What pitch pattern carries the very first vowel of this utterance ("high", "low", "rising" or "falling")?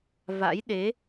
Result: rising